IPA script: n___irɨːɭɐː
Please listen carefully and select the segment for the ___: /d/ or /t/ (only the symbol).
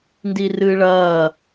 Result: d